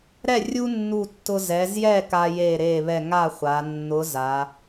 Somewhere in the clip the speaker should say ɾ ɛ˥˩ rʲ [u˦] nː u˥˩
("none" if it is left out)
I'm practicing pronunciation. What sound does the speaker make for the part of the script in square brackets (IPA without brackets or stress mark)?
u˦